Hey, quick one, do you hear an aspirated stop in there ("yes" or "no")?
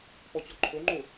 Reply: yes